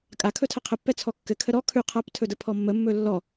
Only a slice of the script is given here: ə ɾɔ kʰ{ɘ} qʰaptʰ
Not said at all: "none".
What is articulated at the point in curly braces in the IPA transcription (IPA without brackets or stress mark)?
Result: ʉ